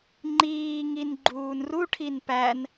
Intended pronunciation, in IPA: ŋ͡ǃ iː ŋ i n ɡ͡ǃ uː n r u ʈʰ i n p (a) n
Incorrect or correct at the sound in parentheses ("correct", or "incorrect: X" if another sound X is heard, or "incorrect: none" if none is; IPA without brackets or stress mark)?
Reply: incorrect: æ